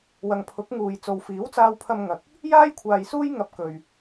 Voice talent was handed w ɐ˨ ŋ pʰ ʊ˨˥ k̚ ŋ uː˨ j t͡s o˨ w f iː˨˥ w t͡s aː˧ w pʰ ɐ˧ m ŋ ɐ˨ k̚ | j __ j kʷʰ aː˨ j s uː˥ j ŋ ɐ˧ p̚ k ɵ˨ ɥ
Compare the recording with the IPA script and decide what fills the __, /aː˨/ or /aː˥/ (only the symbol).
aː˥